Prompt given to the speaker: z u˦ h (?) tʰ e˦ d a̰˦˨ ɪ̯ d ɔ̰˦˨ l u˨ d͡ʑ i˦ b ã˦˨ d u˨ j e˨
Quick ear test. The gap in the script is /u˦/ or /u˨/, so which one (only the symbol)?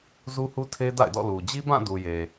u˦